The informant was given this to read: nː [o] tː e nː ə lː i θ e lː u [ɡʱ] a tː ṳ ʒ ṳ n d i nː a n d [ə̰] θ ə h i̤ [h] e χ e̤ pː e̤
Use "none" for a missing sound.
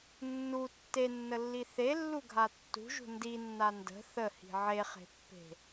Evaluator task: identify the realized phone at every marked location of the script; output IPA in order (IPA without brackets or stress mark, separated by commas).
u, ɡʱ, ə̤, ʕ